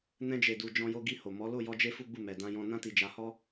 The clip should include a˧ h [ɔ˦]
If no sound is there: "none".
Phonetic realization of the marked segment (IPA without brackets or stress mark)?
ɔ˦